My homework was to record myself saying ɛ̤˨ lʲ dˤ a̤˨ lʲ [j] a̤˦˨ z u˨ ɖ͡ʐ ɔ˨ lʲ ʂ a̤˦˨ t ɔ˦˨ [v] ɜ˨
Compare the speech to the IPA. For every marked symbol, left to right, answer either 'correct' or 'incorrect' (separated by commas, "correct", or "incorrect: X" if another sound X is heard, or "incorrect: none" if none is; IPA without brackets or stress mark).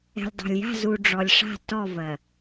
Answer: correct, correct